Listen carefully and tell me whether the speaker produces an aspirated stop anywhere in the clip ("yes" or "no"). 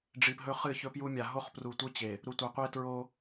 no